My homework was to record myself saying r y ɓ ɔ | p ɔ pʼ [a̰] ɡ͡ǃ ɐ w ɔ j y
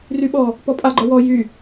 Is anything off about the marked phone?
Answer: yes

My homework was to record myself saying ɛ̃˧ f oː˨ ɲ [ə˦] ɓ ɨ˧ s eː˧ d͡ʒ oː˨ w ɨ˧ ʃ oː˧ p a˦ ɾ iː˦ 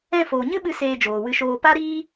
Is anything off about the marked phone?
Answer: yes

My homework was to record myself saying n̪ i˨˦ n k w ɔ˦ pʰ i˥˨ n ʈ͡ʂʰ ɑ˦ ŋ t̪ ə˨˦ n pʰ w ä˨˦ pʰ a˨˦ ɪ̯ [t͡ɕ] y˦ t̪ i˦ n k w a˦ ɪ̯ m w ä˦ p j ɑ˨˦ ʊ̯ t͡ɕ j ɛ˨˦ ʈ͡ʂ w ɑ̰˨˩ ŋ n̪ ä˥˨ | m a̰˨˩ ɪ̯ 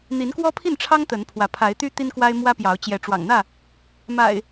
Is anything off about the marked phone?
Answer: yes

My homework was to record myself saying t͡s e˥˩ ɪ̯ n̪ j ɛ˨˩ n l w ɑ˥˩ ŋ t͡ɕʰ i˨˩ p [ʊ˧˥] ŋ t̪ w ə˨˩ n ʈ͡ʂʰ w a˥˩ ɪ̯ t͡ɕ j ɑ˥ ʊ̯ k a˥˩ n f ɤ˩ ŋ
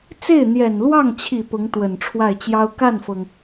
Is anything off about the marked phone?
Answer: no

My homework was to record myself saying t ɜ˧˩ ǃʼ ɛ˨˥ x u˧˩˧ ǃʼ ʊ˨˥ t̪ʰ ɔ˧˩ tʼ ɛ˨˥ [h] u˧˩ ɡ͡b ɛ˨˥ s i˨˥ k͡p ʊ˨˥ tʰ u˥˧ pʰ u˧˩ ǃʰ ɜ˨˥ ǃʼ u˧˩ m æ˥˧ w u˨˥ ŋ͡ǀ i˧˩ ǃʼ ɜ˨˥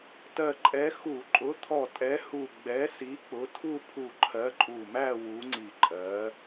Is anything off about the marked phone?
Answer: no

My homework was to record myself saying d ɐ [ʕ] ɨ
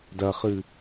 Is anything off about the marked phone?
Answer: yes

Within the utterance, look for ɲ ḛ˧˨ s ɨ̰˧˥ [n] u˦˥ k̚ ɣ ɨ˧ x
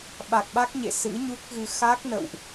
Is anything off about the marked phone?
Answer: yes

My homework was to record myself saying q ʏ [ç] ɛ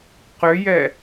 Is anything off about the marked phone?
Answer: yes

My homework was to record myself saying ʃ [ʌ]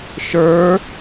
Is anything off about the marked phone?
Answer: yes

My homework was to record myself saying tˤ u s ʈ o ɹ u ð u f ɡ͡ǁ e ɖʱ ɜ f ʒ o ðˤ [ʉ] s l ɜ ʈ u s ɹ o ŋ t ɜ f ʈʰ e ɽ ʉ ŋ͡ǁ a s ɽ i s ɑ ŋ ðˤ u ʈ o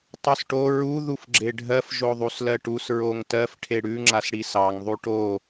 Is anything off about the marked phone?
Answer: yes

